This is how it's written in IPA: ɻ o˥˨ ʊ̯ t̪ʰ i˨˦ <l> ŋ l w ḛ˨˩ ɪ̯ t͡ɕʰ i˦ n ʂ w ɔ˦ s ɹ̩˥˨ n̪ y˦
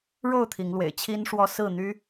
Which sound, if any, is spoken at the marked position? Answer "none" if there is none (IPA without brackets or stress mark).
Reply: none